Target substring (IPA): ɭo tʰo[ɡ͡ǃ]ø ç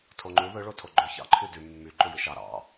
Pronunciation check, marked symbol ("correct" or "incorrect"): correct